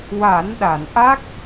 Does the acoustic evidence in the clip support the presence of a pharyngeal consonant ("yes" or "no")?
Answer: no